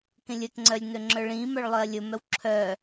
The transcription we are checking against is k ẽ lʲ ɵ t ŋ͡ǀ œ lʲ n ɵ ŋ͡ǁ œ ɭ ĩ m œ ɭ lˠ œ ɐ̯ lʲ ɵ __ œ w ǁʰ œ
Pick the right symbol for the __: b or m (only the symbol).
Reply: m